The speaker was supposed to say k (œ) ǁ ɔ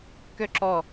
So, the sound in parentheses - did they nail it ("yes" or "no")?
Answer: yes